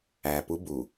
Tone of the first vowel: low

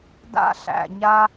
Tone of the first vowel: high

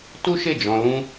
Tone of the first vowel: high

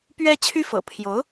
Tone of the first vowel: high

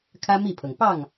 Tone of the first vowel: high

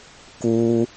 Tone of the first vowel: high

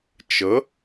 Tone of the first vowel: rising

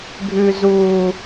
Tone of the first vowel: high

